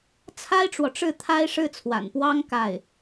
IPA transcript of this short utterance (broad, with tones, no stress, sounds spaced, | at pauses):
t͡sʰ a˥ ɪ̯ ʈ͡ʂ w ɔ˨ ʈ͡ʂ ɻ̩˥˩ t̪ʰ a˥ ɪ̯ ʂ ɻ̩˥˩ t͡sʰ w a̰˨˩ n p w ɑ˥ ŋ k a˥˩ ɪ̯